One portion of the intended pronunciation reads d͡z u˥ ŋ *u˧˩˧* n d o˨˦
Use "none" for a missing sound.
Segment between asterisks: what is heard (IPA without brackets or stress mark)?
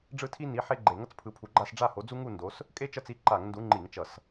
u˥˧